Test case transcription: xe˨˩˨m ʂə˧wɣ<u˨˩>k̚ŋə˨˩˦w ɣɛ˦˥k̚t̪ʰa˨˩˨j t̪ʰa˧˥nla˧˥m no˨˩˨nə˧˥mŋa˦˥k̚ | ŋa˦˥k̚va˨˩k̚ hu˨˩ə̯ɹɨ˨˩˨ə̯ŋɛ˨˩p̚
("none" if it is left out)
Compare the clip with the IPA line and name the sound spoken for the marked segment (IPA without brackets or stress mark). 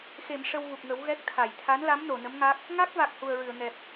u˨˩